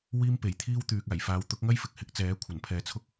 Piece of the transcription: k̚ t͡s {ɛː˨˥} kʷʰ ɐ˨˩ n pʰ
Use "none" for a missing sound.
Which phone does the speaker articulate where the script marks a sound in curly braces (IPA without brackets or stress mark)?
ɛː˨˥